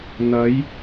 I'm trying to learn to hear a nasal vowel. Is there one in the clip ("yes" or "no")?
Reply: no